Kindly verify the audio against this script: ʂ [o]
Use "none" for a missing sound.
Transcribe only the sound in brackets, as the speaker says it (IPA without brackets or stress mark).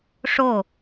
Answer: o